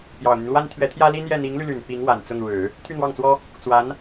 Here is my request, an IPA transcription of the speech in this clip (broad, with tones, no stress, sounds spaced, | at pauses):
p j ɑ˨˩ ʊ̯ n̪ y˦ n l w a˥ n t̪ʰ ɥ ɛ˧˥ t̪ʰ j ä˥ l i˥ n̪ j ɛ˥˩ n̪ i˧˥ ŋ l y˧ l y˨˩ n p i˧˥ ŋ w a˨˩ n t͡s ʊ˥˩ ŋ ɻ ɻ̩˨˩˦ | t̪ʰ y˥˧ n̪ w ɑ˥˩ ŋ t͡s w ɔ˥ | t͡s w a˧˥ n